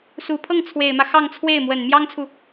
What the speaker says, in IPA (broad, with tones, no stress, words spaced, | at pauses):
su˨˩pʰɤ˥˩ŋ t͡sʰwe˨˩ɪ̯mä˦ xɑ˥˧ŋt͡sʰwe˥˩ɪ̯ mwə˨˩n mjɑ˥ŋt͡sʰu˨